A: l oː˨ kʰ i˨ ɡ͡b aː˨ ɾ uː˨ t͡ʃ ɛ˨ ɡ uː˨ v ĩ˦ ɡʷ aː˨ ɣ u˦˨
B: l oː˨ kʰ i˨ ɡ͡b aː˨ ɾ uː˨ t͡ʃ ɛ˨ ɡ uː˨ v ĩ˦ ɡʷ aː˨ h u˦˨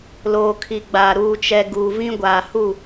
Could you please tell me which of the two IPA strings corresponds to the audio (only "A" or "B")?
B